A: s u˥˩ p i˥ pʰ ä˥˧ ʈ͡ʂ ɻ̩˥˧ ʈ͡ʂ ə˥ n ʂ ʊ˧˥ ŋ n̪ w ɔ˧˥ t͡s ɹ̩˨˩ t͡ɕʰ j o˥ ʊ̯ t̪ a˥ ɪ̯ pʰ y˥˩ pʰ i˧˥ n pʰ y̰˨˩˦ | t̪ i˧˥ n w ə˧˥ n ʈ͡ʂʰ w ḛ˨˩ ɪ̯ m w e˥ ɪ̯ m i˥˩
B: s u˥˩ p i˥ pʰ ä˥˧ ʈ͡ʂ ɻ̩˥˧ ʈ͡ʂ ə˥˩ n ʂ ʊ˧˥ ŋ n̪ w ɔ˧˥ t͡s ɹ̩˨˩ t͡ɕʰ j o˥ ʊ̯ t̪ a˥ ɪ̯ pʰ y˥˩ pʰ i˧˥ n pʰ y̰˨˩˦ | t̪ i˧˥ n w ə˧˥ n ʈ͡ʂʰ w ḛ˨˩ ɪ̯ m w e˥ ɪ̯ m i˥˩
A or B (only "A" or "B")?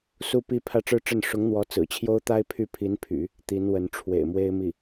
B